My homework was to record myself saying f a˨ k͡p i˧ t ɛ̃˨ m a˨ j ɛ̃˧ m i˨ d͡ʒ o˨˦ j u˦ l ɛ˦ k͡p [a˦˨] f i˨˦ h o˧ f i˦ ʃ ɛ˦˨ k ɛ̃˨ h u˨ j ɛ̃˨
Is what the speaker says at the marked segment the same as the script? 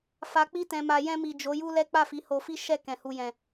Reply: yes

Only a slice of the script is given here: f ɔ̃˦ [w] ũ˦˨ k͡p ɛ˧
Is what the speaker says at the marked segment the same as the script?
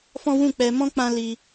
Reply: yes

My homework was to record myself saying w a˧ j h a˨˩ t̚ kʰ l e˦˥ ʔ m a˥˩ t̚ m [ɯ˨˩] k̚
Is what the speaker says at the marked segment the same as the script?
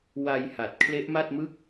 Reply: no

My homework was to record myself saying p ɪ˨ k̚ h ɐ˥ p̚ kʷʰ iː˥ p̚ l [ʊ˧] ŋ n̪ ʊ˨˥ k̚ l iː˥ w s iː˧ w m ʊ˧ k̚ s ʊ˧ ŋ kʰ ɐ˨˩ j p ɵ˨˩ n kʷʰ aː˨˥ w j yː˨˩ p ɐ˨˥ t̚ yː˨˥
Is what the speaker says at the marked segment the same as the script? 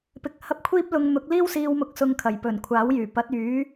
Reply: yes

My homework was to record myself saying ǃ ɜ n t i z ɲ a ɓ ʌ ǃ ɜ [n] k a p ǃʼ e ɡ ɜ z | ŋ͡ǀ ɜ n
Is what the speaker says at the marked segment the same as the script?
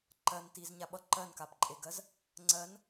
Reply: yes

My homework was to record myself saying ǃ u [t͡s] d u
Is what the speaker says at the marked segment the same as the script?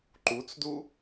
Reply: yes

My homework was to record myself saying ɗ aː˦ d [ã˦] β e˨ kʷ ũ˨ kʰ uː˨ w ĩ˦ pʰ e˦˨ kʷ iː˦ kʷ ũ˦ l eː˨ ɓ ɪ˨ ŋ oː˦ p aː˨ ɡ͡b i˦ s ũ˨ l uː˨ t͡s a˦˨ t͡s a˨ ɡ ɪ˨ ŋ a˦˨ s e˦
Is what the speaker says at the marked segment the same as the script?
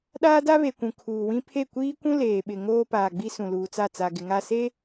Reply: no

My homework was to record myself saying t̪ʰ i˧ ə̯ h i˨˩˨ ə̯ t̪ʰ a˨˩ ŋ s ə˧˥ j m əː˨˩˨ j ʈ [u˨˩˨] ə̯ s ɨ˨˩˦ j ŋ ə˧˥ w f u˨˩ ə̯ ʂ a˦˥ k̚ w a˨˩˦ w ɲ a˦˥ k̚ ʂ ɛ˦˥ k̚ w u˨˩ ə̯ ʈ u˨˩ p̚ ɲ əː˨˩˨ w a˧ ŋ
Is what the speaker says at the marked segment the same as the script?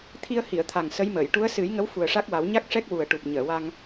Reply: no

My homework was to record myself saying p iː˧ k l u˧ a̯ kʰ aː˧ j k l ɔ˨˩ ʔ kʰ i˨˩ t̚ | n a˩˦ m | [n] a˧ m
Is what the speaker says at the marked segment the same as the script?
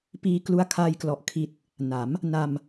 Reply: yes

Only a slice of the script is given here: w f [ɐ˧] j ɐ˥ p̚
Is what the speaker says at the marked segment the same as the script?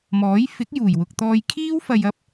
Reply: yes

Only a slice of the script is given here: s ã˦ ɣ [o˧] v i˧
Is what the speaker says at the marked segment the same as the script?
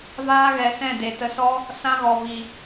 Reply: no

